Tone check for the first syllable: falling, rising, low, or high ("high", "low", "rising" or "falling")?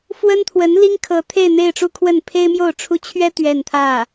high